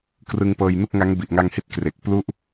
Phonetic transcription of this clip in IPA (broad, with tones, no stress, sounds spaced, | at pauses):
k r ɯ˧ ŋ p ɤː˧ j n u˥˩ k̚ ŋ a˦˥ ŋ b i˨˩ ʔ ŋ a˧ ŋ h i˦˥ t̚ k r e˨˩ k̚ p l u˦˥ ʔ